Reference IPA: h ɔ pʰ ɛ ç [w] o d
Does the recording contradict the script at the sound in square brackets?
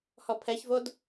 yes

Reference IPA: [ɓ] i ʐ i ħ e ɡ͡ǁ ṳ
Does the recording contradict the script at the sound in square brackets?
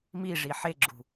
yes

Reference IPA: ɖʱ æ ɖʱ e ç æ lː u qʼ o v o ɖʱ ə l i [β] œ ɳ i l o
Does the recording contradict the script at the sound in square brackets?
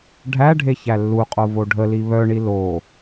no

